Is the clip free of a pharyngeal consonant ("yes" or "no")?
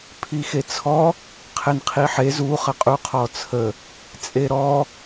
no